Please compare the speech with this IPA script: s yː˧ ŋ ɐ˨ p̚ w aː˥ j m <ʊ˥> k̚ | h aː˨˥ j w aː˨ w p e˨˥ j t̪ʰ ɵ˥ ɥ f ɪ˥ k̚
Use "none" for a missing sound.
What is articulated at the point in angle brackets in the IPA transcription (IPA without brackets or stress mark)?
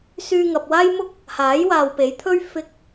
ʊ˥